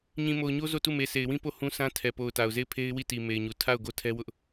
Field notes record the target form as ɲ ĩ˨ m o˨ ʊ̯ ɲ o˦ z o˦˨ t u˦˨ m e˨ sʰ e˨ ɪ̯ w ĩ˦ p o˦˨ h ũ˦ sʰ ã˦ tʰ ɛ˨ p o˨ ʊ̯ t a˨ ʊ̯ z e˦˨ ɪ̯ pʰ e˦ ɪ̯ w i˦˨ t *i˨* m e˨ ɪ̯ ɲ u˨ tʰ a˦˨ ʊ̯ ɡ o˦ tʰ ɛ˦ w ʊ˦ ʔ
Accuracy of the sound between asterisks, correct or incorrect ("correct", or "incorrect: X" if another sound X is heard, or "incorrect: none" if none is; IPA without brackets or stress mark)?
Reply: correct